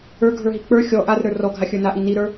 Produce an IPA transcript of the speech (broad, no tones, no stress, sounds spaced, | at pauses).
ə˞ ɡʱ ə˞ ɦ i k͡p ə˞ xʲ ɔ ʔ a r ɾ ə˞ r ɔ ɡʱ a xʲ ə˞ n a ʔ i n i ɾ ə˞